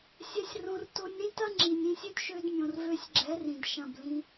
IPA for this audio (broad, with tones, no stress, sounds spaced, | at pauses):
sʲ ɛ˧ sʲ r õ˧ r t o˧ nʲ ɾ ĩ˦ t ɐ˦ ŋ͡ǁ i˨ nʲ ĩ˧ sʲ ø˦ d ʃ ø˧ d mʲ õ˨ r v ø˧ sʲ ɡ͡ǁ ɛ˨˦ r ĩ˨ d ʃ ɐ̃˦˨ b l ĩ˧